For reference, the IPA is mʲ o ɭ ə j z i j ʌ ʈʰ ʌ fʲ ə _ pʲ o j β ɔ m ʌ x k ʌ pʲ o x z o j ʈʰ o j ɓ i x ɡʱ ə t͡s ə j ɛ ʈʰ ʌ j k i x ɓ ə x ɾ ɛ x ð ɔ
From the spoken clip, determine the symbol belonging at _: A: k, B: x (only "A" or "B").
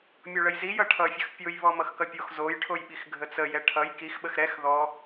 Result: B